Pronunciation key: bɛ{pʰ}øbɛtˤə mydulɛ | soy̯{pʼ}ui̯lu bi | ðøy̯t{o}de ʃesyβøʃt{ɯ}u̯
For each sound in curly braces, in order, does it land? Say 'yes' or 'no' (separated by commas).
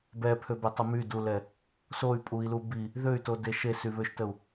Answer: yes, yes, yes, no